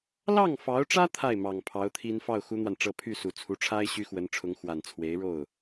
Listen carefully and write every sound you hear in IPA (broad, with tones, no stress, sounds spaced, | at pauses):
l ɑ˥˩ ŋ f ɑ˧˥ ʊ̯ ʈ͡ʂ ä˥ t̪ʰ a˥˩ ɪ̯ m ɑ˨˩ ŋ pʰ ɑ˧˥ ʊ̯ t̪ʰ i˥ n f ɑ˥˩ ʊ̯ x u˥ n̪ w a˨ n ʈ͡ʂ ɤ˥˧ pʰ y˥˩ s u˨˩ t͡sʰ u˧˥ ʈ͡ʂʰ a˥ ɪ̯ ɕ y˥ x w ə˧˥ n ʈ͡ʂʰ ʊ˧˥ ŋ x w a˨˩ n t͡sʰ w e˧˥ ɪ̯ ɻ o˥˩ ʊ̯